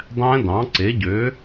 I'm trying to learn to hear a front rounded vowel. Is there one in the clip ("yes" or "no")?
yes